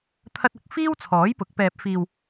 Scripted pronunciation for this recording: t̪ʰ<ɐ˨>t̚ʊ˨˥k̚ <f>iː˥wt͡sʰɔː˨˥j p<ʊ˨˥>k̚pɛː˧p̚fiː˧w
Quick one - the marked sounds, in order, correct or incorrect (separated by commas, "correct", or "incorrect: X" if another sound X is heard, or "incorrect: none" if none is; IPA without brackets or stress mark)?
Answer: incorrect: ɐ˥, correct, correct